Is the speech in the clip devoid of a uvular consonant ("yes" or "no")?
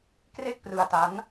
yes